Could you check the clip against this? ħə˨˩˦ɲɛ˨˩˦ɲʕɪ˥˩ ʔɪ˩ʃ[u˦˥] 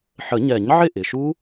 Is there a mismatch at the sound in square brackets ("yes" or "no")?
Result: no